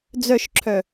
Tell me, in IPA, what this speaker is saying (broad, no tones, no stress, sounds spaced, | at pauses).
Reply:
d͡z œ ʃ ǁʰ œ